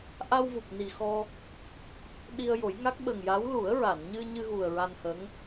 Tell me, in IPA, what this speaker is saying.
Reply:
ʔ a˧ w v u˨˩ p̚ n i˨˩ x ɔ˧ | ɗ i˧ ə̯ j o˨˩˦ j ŋ a˦˥ k̚ ɓ ə˨˩ ŋ j a˧˥ w l u˨˩˦ ə̯ ɹ a˨˩˨ n ɲ ɨ˧ ɲ ɨ˧ ɣ u˨˩ ə̯ ɹ a˧ n h ə˧˥ ŋ

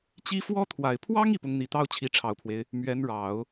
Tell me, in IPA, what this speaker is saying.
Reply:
t͡ɕ i˧˥ f w ɔ˥ t̪ʰ w a˨˩ ɪ̯ pʰ w ɑ˥ ŋ i˥˩ p ʊ˧˥ ŋ n̪ i˨˩ t̪ ɑ˥ ʊ̯ t͡ɕʰ i˧˥ ʈ͡ʂʰ ɑ˨˩ ʊ̯ pʰ w e˦ ɪ̯ | m ɥ ɛ˧˥ n ɻ ɑ˨˩˦ ʊ̯

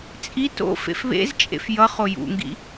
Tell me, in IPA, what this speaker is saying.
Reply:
t͡sʼ i t o̰ f ḛ f β ḛ z t͡ʃʼ ḛ f j ʌ χ o j ṵ ŋ ɡ ḭ

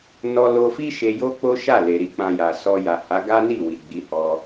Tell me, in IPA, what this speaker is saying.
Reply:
n ɔ˧ l o˧ f i˦ ʃ e˧ j o˦ k͡p o˦ ʃ a˦˨ l e˨ ɾ i˧ k͡p ã˧ j a˨ s ɔ˧ j a˨ h a˨˦ ɡ a˦ n i˦˨ w i˨ ɡ͡b i˨˦ h ɔ˧

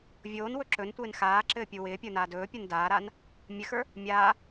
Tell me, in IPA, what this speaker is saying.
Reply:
vʲ oː n w ɵ ǁ ɵ n tʷ ɪː n x aː ǁ ɘː pʲ u w ɪː pʲ ə˞ n aː d ɵː pʲ ə˞ n d aː ɾ a n | mʲ ɘ x ə˞ | mʲ aː

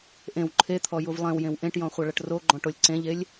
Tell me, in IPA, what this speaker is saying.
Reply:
ʔ ẽ w ǃʰ e t̪ʰ ɔ j u v lˠ ẽ w j ẽ w ʔ ẽ ʈ j ɔ̃ χʷ ɐ ɭ ɐ ʈ r o ɡ͡ǃ ɔ̃ ʈ o lʲ ǀ ẽ ʎ e lʲ

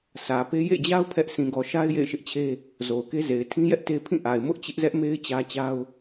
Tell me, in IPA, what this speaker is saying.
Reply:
sʰ ä˨ p e˦ j ḛ˦˨ d͡ʑ a˦ ʊ̯ pʰ ɛ˦ ʔ sʰ ĩ˨ ɡ ɔ˨ ʃ a˦ ɪ̯ j ḛ˦˨ ɪ̯ ʃ ɪ˦ ʔ t͡ɕʰ e˦ | z o˨ ʊ̯ k e˦ z e˨ ɪ̯ tʰ ĩ˦ j ɛ˦ ʔ t e˦ pʰ ĩ˦˨ ʔ a˨ ɪ̯ m ʊ˦ ʔ t͡ɕ ɪ˦ ʔ z ɛ˦ ʔ m e˦ ɪ̯ t͡ɕ ä˦ t͡ɕ a˦ ʊ̯

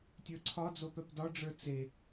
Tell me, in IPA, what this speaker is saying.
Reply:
tʲ ə˞ ǀʰ ɒ d͡z o p œ p d ɒ ɖ͡ʐ ə˞ t͡s e

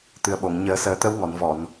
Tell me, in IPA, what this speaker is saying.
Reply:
t̪ ɨ˨˩ ə̯ ɓ o˨˩˨ ŋ ɲ əː˨˩˦ s əː˨˩˦ t̪ ə˧˥ w ŋ ɔ˨˩˨ n v ɔ˨˩˨ n

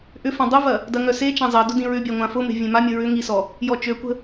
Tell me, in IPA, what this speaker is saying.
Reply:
ʔ ʏ f ã dˤ ʊ v ɐ | d ɐ ŋ œ s e t͡ʃ ã zˤ ɐ d ʊ d ĩ ɹ ʏ bʲ a ŋʷ ã f ʊ m e̤ vʲ ẽ m a mʲ ə ɹ ʏ ŋ i s ɔ | j ɔ t͡ʃ ø kʷ ə̤

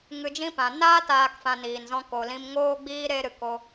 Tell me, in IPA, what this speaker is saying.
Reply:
ŋ ɨ˧ d͡ʒ ĩ˦ p ã˨ n aː˦ t aː˧ k f ã˧ n iː˨ n z ɔ̃˦ k o˨ l ĩ˧ m ŋ oː˦ ɡ͡b iː˦ ɾ e˦ ɾ ɨ˧ k o˦

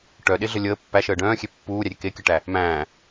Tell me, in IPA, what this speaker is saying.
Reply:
ʈ œ ɗ e ɮ ə lʲ əː pː æ ʃ əː ɖ œ̃ː xʲ e pː uː ɾʲ æ ɾʲ e k e kʲ ə ʈ æ | m æ̃ː

